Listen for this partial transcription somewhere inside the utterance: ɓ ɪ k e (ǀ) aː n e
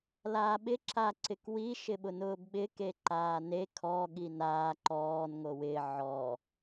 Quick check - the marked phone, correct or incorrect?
incorrect: ǃ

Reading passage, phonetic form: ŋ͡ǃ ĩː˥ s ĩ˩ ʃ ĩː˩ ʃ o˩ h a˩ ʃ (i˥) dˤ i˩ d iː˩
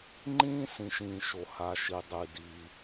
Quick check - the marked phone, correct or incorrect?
incorrect: i˩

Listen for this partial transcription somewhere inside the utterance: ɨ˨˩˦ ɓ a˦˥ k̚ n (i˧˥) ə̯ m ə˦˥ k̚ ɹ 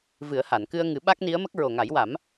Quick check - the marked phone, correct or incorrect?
correct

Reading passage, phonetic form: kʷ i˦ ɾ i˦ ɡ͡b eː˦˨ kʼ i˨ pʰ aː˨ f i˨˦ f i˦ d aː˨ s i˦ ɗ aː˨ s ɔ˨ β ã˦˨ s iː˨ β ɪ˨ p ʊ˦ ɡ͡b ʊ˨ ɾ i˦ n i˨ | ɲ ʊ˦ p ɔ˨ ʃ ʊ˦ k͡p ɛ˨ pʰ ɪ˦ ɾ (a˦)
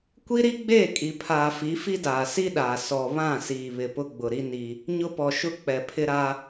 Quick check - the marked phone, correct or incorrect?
correct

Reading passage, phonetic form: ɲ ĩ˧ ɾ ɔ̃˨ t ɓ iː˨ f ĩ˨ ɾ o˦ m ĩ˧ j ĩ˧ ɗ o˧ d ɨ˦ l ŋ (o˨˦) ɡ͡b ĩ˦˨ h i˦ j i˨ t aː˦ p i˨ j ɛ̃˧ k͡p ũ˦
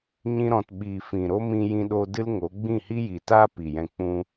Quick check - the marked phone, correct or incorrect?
correct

